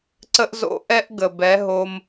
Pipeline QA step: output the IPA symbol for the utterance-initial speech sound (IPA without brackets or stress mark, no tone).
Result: ǀ